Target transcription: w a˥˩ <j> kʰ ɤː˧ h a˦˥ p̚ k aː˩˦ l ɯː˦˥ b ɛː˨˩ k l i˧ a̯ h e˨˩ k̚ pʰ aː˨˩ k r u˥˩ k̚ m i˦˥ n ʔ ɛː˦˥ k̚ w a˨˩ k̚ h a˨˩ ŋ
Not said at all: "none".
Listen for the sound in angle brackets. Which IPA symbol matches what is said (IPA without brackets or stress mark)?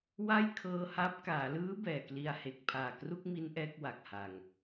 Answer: j